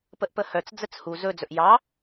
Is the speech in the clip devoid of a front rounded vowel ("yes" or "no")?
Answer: no